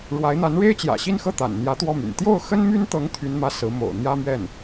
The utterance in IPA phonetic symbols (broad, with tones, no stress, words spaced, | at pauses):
ɻwa˧˥ɪ̯n̪a˧˥n ɻe˥ɪ̯t͡ɕjä̰˨˩ɕi˥˧nxɤ˥˩ t̪a̰˨˩nn̪jä˧˥t̪wɔ˥˩my̰˨˩n t̪jo˥˩ʊ̯xə˥nmy˥nt̪ɤ˧˥ŋ t̪ʰy˥nmä˥ sɹ̩˧˥mo̰˨˩ʊ̯ n̪jä˥mɥɛ˥˩n